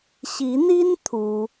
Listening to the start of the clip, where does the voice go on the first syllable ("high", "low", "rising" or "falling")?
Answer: rising